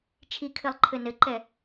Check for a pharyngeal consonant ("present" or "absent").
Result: absent